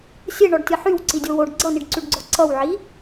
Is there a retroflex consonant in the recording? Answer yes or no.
yes